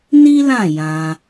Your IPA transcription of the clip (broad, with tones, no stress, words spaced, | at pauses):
ni˦lã˦˨ jã˧